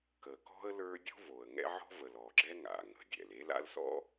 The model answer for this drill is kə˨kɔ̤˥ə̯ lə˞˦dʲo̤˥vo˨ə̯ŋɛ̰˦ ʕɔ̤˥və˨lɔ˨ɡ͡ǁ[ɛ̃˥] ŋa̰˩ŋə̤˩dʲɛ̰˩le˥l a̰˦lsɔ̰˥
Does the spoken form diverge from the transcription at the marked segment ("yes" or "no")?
yes